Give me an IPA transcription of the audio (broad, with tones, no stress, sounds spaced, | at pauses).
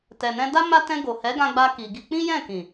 t ɛ˨ n ɛ̃˧ d a˦ m a˧ t ɛ̃˧ ɡ o˨ h ɛ˨˦ ɡ ã˧ ɡ͡b a˧ k i˨ ɡ i˧ k͡p ĩ˦ j ɛ̃˦˨ k ĩ˨